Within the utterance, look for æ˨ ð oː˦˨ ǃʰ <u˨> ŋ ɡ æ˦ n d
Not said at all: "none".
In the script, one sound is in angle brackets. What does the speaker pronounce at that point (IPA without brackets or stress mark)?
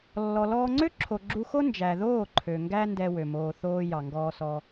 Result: ø˨